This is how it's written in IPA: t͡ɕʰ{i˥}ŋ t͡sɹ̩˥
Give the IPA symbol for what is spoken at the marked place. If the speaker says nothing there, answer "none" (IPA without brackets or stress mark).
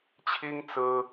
i˥